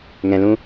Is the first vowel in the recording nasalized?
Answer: yes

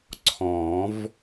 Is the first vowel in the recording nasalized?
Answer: yes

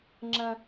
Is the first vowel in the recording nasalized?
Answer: yes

